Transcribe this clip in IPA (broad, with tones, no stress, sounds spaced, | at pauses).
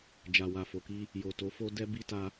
d͡ʒ a˨ w a˨ f o˨ k i˧ | j o˨ t o˨˦ f o˦ d ɛ˦ b i˦ t a˧